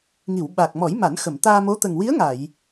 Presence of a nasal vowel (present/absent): absent